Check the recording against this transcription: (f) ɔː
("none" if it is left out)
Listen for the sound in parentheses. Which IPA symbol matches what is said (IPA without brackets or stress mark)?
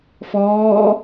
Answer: f